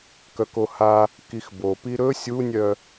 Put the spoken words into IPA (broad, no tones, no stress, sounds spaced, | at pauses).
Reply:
k œ k o h a | k i x b o p i ɾ ɵ sʲ u nʲ œ